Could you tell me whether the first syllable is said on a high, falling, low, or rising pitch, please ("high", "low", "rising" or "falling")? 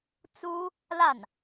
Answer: high